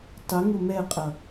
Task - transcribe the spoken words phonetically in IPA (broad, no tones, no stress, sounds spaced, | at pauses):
tˤ ɪ ŋ ʊ m ɛ qʼ ʌ